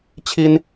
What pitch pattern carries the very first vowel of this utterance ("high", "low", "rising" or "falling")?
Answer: high